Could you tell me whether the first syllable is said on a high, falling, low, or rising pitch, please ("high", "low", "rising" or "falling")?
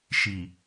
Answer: low